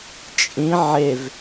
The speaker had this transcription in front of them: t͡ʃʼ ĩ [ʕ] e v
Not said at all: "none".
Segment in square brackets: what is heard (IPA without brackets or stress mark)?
ʕ